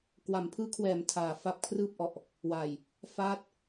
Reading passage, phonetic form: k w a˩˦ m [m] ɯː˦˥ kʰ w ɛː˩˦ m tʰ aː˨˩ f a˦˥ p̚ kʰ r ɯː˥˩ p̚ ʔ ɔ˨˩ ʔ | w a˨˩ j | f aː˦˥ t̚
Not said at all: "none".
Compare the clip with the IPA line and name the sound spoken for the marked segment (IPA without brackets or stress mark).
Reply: pʰ